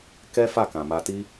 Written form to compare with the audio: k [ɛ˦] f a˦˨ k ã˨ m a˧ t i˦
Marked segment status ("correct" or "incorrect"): correct